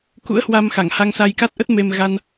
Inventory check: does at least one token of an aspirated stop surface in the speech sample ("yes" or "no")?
no